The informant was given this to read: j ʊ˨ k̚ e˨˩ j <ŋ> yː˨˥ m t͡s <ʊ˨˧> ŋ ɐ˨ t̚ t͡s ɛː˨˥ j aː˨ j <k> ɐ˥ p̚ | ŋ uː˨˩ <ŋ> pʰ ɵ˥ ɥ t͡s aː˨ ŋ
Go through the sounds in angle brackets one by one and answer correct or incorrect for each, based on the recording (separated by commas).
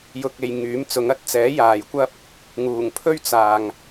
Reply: correct, incorrect, incorrect, correct